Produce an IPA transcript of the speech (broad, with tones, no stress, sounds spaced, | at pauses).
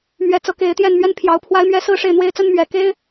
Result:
m ɥ ɛ˧˥ t͡s ɤ˧˥ k e˧˥ ɪ̯ t̪ j ɛ˥˧ n m ɥ ɛ˥˩ n pʰ j ɑ˧˥ ʊ̯ pʰ w a˥ ɪ̯ m ɥ ɛ˥ s ɹ̩˥˧ ʂ e˥˩ ɪ̯ n̪ w e˥ ɪ̯ t͡s ə˥ n m ɥ ɛ˨˩ k e˥ ɪ̯